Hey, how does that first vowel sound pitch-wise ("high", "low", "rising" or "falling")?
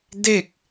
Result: falling